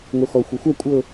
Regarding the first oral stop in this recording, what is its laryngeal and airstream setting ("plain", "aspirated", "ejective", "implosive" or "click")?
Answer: ejective